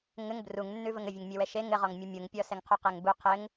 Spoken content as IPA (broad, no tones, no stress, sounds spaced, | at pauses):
ŋ ɘ ŋ b r u ŋ nː ʉ v ə ŋ ɘ vʲ ə ŋ mʲ e w ɛ ʃ e ŋ ɘ ʁ ɔ ŋ mʲ ʉ mʲ u ŋ pʲ ɔ s ɛ ŋ qʰ u q ɛ ŋ b u qʰ ɘ ŋ